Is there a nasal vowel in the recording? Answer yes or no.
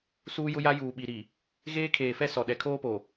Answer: no